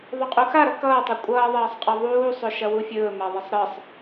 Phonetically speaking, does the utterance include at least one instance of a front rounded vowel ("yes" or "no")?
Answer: no